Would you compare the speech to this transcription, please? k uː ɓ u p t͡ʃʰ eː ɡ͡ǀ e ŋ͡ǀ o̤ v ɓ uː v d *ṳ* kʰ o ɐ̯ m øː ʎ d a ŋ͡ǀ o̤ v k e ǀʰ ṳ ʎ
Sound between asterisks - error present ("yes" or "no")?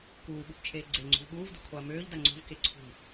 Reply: no